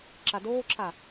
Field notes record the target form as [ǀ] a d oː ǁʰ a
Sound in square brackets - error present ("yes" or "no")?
yes